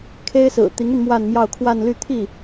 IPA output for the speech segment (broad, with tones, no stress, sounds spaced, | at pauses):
kʰ e˥ ɪ̯ s ɹ̩˨˩ t̪ i˧˥ ŋ y˧ n m w a˥˧ n m j ɑ˥˧ ʊ̯ kʰ w a˥˧ n l y˥˧ t̪ʰ i˥˩